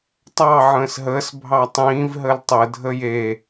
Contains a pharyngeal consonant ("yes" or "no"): yes